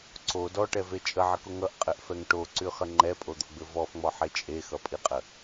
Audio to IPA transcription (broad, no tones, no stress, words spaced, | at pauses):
ǀo dɔʈɛve t͡ʃʼəʕəko ŋʌʔqʼɘʔfɛŋ ʈoǀyχə ŋ͡ǃɛpʼod̪oɡ͡bɘ vɔfŋ͡mɔħe t͡ʃʼexʌpʼiqʼə